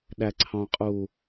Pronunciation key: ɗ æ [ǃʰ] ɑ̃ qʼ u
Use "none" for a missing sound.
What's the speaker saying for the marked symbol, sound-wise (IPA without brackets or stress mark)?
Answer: ǀʰ